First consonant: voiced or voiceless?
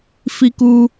voiceless